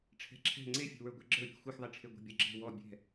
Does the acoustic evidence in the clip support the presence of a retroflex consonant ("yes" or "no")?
yes